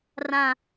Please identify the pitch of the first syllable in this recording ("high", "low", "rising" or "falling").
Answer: low